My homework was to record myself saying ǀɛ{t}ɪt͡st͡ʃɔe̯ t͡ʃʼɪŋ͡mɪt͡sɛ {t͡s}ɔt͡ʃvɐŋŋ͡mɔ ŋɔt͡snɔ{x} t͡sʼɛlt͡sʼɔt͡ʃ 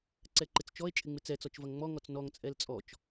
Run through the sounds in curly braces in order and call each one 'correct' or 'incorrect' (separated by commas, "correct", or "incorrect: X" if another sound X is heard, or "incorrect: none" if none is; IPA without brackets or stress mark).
incorrect: ǃ, correct, incorrect: ŋ